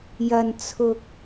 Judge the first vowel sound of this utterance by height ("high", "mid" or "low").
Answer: low